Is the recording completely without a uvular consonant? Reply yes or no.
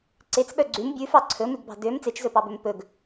yes